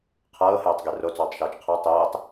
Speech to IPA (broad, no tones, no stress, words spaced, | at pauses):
qʰɤːheːtˤɡe rot͡sɔːtˤʃɤːt͡ʃ qʰɤ tˤeːtˤ